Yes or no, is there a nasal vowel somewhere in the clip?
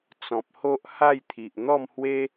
yes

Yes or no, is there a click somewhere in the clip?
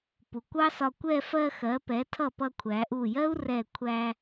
no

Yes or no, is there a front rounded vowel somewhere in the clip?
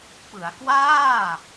no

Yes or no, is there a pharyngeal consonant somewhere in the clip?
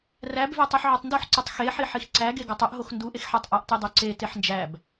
yes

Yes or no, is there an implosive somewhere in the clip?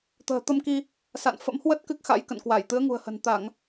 no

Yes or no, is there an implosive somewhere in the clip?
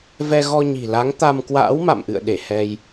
yes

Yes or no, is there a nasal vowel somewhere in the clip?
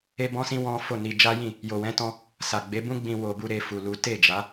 yes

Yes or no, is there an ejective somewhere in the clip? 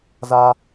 no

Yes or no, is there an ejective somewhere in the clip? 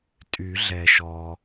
yes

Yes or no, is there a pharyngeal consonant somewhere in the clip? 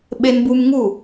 no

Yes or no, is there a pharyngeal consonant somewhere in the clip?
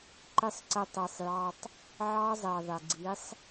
yes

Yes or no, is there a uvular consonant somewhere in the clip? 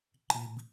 no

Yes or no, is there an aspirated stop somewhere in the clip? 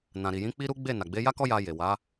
no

